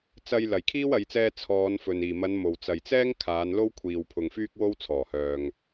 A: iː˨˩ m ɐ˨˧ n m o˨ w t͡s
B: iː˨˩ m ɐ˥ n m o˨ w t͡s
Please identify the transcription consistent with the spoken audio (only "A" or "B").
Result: A